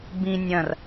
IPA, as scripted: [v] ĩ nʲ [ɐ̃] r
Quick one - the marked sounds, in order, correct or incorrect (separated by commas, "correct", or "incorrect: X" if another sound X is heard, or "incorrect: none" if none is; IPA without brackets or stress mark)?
incorrect: b, correct